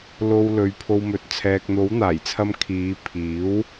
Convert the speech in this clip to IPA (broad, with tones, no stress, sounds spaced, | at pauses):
l o˨ w l ɵ˨˧ ɥ pʰ o˧ w m ɵ˨ t̚ t͡sʰ ɛː˨ k̚ n̪ o˨˥ w n̪ aː˨˩ j t͡sʰ ɐ˧ m kʰ iː˨˧ pʰ iː˨˥ w